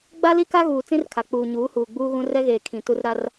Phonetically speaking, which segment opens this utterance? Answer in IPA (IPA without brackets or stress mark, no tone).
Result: ɡ͡b